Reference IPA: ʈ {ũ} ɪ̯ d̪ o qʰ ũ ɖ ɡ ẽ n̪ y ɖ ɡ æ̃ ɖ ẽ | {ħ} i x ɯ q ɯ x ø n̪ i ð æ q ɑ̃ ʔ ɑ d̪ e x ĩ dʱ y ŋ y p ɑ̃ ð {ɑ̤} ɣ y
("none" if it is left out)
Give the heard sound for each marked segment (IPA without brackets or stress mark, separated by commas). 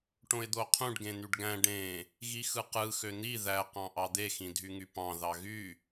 õ, ɣ, ɑ